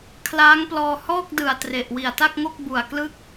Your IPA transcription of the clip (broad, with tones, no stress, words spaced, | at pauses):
kʰlaː˦˥ŋplɔː˧ hɔː˥˩k̚dɯ˨˩a̯ tre˨˩ʔ wi˨˩a̯ta˥˩k̚ŋo˥˩k̚ bu˨˩a̯ klɯ˥˩k̚